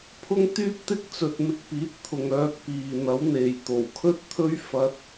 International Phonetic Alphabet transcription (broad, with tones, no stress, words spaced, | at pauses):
pʰʊ˥ŋt̪yː˥p̚t̪ɪ˥k̚ t͡sɵ˨t̚ mɪ˧k̚piː˨˥t̚ t̪ʰʊ˨ŋœː˧k̚ piː˨n̪ɐ˨˥w n̪e˨jt̪o˨˩w kʰɵ˥t̚t̪ʰɵ˥ɥ fɐ˥t̚